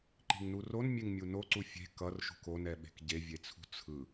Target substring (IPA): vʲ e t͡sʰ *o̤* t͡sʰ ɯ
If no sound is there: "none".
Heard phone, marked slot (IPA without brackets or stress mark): ṳ